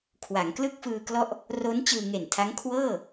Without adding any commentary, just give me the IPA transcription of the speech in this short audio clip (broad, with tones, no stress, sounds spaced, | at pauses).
kʰ w a˩˦ ŋ k l ɯ˥˩ k̚ f ɯː˧ k l ɔ˦˥ ʔ | r o˦˥ n t͡ɕ ɯː˧ ŋ e˨˩ n tʰ a˦˥ ŋ kʰ w ɤː˥˩